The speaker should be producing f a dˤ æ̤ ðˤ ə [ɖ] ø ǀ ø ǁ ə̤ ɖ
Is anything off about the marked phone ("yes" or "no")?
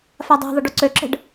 no